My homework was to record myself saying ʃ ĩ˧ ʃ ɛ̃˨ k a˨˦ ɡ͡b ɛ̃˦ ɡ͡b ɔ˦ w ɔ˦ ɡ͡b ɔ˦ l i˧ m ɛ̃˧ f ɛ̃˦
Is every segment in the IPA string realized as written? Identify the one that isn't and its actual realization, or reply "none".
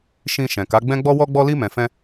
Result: i˧ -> i˦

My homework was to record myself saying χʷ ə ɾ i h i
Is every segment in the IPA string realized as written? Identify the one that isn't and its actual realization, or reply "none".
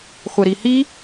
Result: none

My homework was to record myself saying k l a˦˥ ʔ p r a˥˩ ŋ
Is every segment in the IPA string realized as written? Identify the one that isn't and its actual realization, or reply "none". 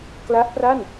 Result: ŋ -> n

